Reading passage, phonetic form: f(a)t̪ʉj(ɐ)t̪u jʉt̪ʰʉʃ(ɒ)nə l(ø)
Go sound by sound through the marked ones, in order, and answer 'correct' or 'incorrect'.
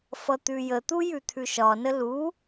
incorrect, incorrect, correct, incorrect

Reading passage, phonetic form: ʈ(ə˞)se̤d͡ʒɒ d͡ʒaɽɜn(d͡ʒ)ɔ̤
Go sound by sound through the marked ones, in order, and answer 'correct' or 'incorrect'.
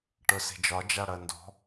correct, incorrect

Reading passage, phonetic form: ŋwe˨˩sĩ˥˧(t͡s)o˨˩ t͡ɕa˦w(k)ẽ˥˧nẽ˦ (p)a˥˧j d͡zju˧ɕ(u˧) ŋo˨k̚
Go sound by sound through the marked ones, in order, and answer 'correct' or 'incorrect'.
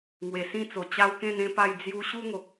correct, correct, correct, incorrect

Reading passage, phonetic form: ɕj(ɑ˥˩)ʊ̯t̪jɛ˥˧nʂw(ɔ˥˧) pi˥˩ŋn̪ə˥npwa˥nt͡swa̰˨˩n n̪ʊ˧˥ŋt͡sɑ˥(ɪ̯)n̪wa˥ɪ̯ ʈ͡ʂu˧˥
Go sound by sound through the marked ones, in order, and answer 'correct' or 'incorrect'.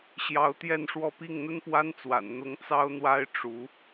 incorrect, correct, incorrect

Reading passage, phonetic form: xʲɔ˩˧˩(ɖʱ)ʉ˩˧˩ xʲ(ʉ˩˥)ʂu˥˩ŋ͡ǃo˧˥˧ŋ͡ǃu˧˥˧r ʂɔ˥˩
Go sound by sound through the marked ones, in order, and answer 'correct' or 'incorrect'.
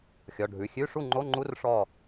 correct, incorrect

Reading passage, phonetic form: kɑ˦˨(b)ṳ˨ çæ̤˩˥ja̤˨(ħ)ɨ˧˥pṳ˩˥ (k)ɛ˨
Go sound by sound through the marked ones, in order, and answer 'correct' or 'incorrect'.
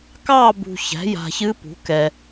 correct, incorrect, correct

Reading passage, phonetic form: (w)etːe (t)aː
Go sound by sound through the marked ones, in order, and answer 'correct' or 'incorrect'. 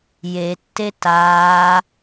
incorrect, correct

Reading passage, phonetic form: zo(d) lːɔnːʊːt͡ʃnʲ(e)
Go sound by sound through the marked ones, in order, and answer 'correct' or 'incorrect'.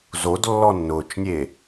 correct, correct

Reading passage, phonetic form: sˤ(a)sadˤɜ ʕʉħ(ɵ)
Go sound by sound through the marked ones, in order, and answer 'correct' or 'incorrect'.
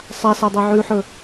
correct, correct

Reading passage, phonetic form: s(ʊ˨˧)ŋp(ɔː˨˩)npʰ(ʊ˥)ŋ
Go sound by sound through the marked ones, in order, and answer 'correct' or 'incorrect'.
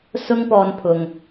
incorrect, incorrect, incorrect

